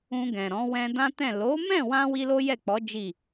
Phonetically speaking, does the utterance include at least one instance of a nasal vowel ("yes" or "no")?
yes